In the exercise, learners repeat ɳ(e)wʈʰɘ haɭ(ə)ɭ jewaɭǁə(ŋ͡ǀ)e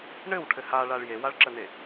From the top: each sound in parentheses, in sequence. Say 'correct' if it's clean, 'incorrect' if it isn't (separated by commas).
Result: incorrect, incorrect, incorrect